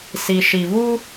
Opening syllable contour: low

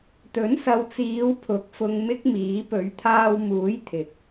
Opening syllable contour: rising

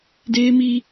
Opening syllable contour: high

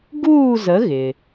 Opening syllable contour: falling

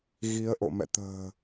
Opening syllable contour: rising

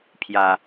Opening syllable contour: low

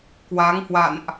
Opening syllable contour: rising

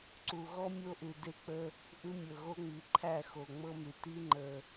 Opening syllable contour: low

